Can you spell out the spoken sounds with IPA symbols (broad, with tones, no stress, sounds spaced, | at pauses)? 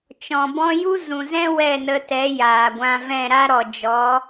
t͡ʃ ɔ̃˨ b ɔ̃˦ j u˦ z ũ˨ z ɛ̃˦ w ɛ˦˨ n ə˧ t ɛ˨˦ j aː˨ ɡʷ ã˧ v ɛ̃˦˨ ɾ a˦ ɾ ɔ˨ d͡ʒ ɔ˨˦